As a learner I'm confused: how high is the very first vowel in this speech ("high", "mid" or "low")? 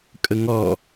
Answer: mid